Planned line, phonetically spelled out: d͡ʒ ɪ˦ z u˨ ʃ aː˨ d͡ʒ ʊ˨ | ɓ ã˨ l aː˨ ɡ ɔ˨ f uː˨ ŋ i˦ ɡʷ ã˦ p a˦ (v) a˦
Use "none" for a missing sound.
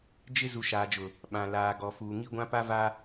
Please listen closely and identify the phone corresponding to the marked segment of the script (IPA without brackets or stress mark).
v